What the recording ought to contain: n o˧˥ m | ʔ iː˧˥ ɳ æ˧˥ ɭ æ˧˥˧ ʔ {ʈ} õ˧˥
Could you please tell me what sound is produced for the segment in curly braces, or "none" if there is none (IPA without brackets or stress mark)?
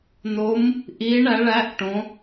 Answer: ʈ